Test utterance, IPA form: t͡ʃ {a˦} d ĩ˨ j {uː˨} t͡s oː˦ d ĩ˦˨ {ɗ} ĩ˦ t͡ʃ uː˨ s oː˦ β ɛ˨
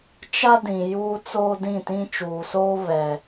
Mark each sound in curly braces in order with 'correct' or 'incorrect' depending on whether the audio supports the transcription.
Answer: correct, incorrect, incorrect

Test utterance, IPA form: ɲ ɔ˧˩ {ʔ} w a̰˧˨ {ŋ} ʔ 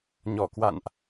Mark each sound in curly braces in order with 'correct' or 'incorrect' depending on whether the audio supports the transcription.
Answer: incorrect, incorrect

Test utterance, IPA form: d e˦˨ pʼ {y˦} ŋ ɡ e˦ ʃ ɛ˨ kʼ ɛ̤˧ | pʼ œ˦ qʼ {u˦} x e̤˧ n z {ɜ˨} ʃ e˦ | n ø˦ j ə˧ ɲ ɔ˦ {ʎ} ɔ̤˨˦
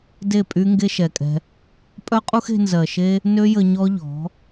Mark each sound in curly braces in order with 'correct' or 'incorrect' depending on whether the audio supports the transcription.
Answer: correct, correct, correct, correct

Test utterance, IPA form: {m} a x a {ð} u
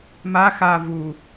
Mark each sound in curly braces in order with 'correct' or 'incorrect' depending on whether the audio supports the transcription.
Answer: correct, incorrect

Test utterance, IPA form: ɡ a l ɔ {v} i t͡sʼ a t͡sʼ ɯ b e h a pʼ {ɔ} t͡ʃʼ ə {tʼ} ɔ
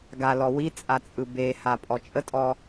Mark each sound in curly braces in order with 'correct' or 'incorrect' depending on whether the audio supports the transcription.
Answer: incorrect, correct, correct

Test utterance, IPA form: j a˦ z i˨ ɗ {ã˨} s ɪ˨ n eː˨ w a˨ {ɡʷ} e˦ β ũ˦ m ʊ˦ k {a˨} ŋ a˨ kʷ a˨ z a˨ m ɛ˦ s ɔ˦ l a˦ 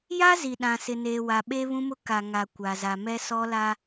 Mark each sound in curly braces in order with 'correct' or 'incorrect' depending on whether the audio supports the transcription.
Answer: correct, incorrect, correct

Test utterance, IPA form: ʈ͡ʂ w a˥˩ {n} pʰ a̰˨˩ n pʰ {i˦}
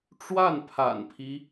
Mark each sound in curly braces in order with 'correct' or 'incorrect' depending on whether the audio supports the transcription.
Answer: correct, correct

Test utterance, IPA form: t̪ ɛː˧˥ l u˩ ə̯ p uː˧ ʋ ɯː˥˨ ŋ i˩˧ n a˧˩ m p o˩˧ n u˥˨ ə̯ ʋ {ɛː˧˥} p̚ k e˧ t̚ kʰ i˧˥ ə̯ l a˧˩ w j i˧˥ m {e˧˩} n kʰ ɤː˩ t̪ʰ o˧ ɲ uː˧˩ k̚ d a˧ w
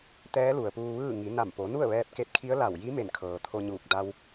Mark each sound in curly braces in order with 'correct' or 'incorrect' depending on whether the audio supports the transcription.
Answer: incorrect, correct

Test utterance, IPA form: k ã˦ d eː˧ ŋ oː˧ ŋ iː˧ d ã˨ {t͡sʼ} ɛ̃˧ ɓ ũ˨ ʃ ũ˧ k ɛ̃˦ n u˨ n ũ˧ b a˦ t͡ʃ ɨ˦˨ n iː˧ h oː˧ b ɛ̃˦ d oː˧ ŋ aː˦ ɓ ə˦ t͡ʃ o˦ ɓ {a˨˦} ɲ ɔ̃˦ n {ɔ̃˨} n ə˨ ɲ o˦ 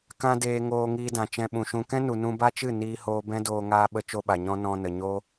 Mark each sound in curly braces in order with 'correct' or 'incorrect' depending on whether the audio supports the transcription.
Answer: incorrect, incorrect, incorrect

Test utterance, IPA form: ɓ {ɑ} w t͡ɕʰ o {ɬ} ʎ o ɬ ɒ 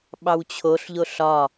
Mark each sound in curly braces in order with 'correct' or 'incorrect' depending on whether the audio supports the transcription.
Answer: correct, correct

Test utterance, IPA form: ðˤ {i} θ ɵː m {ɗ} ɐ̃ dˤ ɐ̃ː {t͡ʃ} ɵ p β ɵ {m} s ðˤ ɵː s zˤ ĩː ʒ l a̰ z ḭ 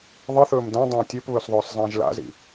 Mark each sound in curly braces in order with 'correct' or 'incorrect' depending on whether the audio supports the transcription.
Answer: incorrect, incorrect, incorrect, incorrect

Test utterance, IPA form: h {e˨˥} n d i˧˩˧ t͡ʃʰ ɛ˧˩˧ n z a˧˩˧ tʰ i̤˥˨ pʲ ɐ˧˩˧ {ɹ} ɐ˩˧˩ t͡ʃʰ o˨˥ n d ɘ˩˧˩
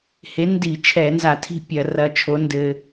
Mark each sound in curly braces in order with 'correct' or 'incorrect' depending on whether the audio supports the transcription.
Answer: correct, incorrect

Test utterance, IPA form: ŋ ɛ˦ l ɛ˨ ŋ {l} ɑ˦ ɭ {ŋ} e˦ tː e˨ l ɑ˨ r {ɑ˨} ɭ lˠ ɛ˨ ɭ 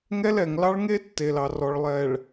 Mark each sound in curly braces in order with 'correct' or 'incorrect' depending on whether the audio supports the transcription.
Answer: correct, correct, incorrect

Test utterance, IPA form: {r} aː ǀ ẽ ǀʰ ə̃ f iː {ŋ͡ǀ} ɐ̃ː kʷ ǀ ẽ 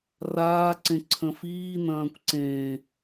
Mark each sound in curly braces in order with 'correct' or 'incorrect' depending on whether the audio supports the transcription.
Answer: correct, incorrect

